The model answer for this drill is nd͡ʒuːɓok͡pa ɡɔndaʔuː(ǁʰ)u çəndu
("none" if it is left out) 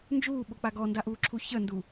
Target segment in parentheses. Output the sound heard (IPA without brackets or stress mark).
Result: ǁʰ